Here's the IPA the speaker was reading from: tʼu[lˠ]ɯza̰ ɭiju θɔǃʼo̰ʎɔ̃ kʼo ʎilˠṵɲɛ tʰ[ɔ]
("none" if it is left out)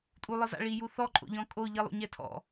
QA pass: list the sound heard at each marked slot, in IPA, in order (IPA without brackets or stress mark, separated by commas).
lˠ, ɔ̰